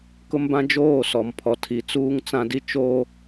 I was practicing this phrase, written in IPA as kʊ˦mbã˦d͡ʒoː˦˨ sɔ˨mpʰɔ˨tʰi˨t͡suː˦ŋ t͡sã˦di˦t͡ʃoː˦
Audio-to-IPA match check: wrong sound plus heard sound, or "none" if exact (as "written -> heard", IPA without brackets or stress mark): none